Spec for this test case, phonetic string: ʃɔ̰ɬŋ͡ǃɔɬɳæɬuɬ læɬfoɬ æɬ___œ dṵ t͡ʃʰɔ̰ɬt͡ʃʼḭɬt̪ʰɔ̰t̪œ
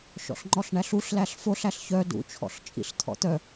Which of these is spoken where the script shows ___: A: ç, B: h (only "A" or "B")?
A